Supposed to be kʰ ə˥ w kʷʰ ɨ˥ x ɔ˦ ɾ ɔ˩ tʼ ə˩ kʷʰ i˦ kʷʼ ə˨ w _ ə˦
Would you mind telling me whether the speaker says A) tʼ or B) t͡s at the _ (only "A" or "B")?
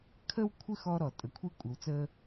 B